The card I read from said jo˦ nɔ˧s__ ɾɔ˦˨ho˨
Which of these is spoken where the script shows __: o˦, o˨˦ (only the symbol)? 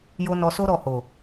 o˦